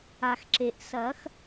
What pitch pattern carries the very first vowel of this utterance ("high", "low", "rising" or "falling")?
low